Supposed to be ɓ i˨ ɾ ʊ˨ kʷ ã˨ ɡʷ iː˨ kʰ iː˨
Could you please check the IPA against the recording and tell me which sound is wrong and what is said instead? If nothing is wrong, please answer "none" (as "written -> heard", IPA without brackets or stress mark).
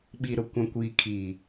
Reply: ɡʷ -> kʷ